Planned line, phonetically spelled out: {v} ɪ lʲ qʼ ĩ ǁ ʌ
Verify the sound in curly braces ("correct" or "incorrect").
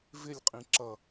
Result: correct